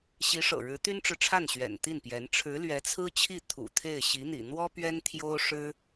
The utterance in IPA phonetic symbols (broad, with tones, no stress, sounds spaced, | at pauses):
ɕ i˧˥ ʂ ɤ̰˨˩ ɻ ɻ̩˧˥ t̪ y˥ n ʈ͡ʂ ɻ̩˨ ʈ͡ʂʰ a˥˩ n ɕ ɥ ɛ̰˨˩ n t̪ i˥˩ n p j ɛ˧˥ n ʈ͡ʂʰ ɻ̩˧˥ l ɥ ɛ˧˥ t͡sʰ ɹ̩˥ t͡ɕʰ i˥˩ t̪ʰ ṵ˨˩ t̪ʰ e˥˩ ɪ̯ ɕ i˧˥ n̪ ḭ˨˩ n̪ w ɔ˥ p ɥ ɛ˥ n t̪ʰ j o˥ ʊ̯ ʂ ɻ̩˥